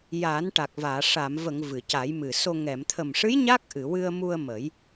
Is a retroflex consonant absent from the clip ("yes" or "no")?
no